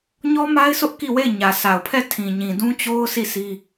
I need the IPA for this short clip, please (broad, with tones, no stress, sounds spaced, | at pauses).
ɲ ɔ˦ m a˦ ɪ̯ s ʊ˦ ʔ k i˦˨ w e˦˨ ɪ̯ ɲ ä˨ sʰ a˨ ʊ̯ pʰ ɛ˦˨ tʰ ĩ˨ ɲ ĩ˨ d ũ˦ t͡ɕ o˦ ʊ̯ sʰ i˦˨ sʰ i˦